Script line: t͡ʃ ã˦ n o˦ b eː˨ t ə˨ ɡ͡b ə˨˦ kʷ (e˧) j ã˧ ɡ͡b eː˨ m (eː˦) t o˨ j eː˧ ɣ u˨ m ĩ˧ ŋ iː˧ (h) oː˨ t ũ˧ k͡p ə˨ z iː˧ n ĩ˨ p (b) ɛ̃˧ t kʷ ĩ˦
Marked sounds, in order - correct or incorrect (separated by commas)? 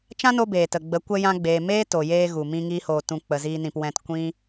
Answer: incorrect, correct, correct, incorrect